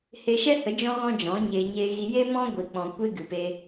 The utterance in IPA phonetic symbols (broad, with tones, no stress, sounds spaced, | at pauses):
h e˧ ʃ ɛ˦ h ə˨˦ d͡ʒ ɔ̃˦ ɣ ɔ̃˦ d͡ʒ ɔ̃˨˦ ɲ e˧ ɲ e˧ ɣ i˧ j e˦ m ɔ̃˦ ɡʷ i˨ k͡p ɔ̃˨ kʷ e˦ ɡ ɨ˨ p e˧